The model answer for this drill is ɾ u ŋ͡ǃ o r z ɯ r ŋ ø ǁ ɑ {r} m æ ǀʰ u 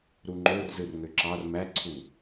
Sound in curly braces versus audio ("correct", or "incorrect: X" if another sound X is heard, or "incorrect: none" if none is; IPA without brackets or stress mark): correct